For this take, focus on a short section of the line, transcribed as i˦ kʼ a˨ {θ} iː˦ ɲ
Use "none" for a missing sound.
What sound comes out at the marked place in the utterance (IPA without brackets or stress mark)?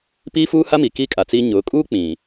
t͡s